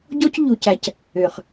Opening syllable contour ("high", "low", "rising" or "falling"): high